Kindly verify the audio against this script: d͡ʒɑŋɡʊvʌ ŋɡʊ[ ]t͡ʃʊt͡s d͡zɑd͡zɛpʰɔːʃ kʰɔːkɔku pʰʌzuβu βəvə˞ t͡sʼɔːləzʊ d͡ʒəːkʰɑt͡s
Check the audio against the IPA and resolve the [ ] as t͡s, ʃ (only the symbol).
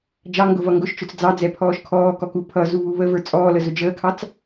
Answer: ʃ